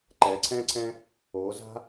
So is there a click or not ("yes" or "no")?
yes